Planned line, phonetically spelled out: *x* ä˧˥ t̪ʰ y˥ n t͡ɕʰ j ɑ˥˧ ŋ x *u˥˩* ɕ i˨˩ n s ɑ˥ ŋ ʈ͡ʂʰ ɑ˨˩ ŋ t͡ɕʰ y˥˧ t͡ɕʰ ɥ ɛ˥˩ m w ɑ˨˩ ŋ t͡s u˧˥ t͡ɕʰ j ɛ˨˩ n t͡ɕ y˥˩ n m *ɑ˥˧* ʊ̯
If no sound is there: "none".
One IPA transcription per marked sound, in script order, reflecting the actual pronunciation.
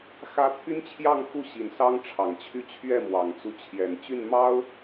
x, u˥˩, ɑ˥

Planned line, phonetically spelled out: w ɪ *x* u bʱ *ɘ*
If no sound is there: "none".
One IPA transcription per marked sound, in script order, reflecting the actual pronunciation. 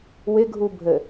ɡʱ, ɘ

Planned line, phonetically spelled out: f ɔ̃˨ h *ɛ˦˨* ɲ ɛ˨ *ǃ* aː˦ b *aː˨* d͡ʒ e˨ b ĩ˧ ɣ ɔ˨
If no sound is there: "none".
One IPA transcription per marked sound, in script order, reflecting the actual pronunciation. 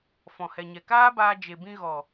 ɛ˨, k, aː˧

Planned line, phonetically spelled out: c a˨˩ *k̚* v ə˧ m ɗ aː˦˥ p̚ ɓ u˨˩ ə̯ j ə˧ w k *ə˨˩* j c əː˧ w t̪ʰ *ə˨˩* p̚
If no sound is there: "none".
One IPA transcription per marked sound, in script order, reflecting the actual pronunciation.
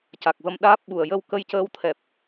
k̚, ə˧, ɛ˨˩

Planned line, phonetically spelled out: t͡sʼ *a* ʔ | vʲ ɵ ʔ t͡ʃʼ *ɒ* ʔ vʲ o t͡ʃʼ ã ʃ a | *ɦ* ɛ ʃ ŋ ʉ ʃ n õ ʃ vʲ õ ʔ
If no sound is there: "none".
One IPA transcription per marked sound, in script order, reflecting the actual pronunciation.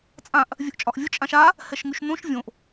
ã, ɒ, h

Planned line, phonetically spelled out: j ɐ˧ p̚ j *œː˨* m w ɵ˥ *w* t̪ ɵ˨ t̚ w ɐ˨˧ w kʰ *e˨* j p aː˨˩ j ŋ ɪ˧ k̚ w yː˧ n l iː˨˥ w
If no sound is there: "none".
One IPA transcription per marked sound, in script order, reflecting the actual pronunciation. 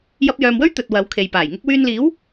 œː˨, ɥ, e˨

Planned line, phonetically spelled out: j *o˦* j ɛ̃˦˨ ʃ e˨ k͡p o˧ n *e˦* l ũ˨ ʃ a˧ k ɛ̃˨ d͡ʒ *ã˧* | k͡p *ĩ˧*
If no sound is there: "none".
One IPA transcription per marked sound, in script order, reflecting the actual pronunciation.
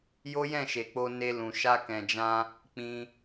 o˦, e˧, ã˧, ĩ˧

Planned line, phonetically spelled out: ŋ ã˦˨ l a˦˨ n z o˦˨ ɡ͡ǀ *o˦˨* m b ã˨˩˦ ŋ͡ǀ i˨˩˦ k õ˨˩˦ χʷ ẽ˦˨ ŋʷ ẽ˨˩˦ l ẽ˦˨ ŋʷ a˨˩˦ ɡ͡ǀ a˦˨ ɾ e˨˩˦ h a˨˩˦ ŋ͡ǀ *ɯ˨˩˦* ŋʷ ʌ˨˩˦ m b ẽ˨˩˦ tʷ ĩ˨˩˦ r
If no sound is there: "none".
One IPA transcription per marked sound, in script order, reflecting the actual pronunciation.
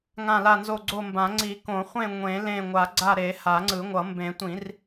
o˦˨, ɯ˨˩˦

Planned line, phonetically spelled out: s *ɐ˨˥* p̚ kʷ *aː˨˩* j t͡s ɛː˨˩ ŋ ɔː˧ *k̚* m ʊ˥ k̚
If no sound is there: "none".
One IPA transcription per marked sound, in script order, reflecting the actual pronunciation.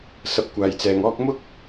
ɐ˨˥, aː˨˩, k̚

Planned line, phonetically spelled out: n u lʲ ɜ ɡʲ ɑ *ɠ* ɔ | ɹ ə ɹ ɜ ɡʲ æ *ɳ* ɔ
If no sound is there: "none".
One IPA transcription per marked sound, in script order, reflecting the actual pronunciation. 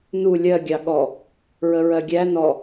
ɠ, n

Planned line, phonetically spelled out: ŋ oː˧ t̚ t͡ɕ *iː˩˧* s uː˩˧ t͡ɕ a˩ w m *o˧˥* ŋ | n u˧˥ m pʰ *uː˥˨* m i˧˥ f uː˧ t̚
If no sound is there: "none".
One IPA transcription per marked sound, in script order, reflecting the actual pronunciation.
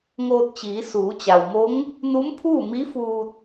iː˩˧, o˧˥, uː˥˨

